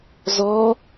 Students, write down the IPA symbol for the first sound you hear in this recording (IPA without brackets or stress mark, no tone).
z